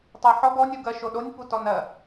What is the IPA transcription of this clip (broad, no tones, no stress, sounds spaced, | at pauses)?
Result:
tˤ ɛ ħ ɔ ɡ ɔ nʲ u ɡ ɜ ʃ o ɗ o nʲ p u t ɔ n ɜ